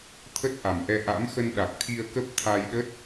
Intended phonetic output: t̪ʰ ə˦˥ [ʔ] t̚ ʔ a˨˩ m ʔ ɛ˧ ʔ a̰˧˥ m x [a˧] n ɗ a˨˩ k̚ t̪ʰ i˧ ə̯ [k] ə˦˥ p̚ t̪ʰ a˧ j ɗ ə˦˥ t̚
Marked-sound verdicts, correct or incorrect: incorrect: none, incorrect: ə˧, correct

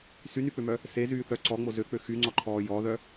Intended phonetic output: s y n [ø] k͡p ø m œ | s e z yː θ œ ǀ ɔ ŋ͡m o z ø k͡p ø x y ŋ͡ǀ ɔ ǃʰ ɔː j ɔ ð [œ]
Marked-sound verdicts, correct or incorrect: incorrect: y, correct

